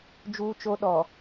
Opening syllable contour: high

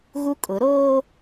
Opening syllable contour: high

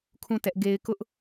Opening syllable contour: falling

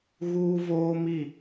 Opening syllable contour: high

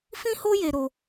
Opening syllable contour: high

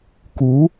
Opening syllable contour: rising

